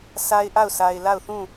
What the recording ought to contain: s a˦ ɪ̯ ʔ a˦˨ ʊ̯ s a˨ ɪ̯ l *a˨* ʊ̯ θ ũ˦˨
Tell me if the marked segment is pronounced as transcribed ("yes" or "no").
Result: no